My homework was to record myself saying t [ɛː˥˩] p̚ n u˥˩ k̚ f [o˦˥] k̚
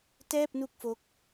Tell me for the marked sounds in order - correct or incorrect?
correct, correct

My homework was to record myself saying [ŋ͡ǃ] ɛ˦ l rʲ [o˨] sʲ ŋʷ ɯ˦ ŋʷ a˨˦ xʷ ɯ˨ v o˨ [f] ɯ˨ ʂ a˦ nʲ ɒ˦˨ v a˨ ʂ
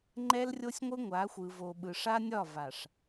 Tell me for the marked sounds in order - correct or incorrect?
correct, incorrect: o˦, incorrect: ɓ

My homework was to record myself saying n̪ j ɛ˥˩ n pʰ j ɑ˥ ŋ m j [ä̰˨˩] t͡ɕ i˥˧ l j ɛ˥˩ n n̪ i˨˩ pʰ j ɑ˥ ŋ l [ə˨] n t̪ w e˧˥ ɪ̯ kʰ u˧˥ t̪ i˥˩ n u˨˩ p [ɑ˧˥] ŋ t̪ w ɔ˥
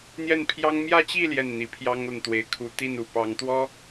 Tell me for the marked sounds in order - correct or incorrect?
incorrect: ä˥˧, correct, correct

